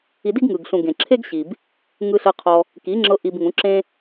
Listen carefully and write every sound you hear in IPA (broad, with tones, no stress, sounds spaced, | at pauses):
i˧ d i˦ ɡ ŋ ɯ˨ ɡ ɬ ũ˨ ɡ ẽ˨ ǁʰ e˦ ɡ ɕ i˨ b | ŋ ɯ˧ ɬ ɤ˧ qʰ ɔ˧ | k i˨˦ ŋ͡ǁ ɤ˧ ʔ i˧ b ŋ ũ˨˦ ǁ ẽ˦